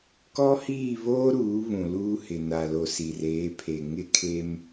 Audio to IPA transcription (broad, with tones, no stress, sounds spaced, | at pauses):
k ɔ˦ h iː˦˨ β oː˦ ɾ uː˨˦ β ũ˨ l uː˦ h ɪ˨ n a˨ l o˨ s i˨ r eː˨˦ pʰ e˨ ŋ ɪ˦ kʰ e˦ m